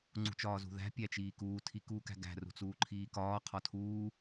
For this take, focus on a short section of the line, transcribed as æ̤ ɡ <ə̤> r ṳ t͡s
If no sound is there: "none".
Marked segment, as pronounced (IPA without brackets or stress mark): æ̤